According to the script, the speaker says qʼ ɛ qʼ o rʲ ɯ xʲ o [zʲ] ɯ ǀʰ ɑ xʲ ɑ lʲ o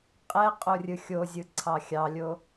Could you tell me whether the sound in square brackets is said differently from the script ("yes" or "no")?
no